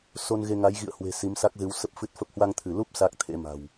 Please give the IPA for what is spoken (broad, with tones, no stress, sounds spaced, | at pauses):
s o˧ n ɣ e˧ ŋ a˨˦ j ɣ ḭ˧˨ ə̯ h w e̤˨˩ s i˨˦ m s a˦˥ k̚ z ɨ˨˦ w s ə˦˥ p̚ f ɨ˦˥ t̚ f ə˦˥ p̚ h w a˧ ŋ t̪ʰ ɨ˧˩ l u˦˥ p̚ s a˦˥ k̚ t̪ʰ ḛ˧˥ m a̤˨˩ w